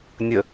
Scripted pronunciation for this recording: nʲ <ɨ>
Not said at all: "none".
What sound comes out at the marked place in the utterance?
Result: ə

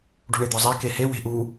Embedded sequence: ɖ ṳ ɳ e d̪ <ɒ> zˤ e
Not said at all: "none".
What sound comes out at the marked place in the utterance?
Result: ɒ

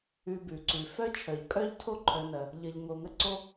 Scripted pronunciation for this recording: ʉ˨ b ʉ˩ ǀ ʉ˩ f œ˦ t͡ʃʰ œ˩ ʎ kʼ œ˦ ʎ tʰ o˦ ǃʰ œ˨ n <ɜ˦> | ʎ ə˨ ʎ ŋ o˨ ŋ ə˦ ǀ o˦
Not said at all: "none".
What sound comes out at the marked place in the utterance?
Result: ɜ˩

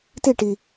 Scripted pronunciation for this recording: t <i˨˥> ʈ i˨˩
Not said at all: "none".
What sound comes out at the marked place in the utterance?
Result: i˥˨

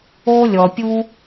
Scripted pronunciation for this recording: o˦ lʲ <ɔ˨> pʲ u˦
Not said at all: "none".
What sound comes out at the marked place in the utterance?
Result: ɔ˨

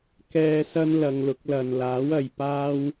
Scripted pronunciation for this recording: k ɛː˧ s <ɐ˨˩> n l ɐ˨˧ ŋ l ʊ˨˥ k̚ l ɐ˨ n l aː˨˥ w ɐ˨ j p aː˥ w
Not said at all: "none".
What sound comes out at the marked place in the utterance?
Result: ɐ˥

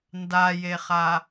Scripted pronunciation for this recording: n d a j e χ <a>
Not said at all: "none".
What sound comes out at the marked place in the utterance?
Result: a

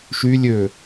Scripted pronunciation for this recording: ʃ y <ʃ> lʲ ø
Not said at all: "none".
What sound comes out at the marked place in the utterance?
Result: none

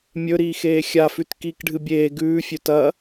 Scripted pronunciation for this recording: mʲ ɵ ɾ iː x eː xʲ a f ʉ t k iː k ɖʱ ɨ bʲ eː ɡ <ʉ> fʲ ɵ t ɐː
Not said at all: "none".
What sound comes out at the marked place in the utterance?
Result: ʉː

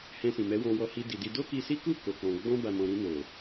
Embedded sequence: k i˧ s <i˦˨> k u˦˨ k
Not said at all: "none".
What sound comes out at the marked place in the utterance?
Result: i˦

